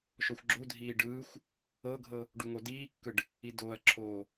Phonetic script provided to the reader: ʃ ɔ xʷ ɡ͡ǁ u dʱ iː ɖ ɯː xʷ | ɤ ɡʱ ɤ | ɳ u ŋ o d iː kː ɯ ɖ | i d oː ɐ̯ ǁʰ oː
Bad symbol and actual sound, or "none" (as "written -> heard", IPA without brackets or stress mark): ɳ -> ɖ